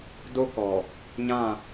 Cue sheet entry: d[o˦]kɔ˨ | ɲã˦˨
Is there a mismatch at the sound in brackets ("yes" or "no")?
no